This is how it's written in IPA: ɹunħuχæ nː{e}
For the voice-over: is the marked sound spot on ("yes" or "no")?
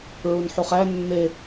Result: yes